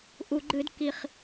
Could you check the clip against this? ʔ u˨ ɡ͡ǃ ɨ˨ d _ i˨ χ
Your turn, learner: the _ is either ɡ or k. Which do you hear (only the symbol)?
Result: k